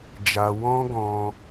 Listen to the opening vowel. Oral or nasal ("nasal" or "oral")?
oral